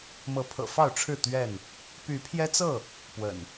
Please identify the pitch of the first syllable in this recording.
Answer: rising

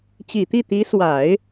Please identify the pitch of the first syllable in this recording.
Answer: low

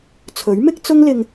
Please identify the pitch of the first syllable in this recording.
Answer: rising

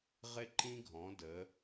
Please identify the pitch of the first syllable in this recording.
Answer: high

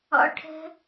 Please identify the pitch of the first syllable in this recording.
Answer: high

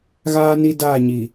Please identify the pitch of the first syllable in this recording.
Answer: high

